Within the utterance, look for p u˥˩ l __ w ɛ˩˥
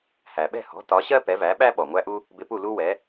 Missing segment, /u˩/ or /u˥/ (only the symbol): u˥